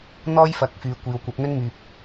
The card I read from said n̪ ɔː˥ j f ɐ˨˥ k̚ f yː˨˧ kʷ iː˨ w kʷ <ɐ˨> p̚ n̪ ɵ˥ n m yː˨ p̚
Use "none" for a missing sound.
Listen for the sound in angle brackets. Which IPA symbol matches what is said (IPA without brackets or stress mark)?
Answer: ɐ˨˥